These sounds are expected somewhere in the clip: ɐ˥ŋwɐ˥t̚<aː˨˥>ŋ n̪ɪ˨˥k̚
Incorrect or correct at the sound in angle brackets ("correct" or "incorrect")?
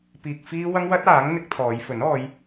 correct